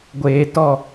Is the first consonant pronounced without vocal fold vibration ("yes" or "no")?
no